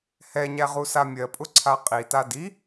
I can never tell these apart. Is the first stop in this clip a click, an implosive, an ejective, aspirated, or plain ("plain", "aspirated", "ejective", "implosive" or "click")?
ejective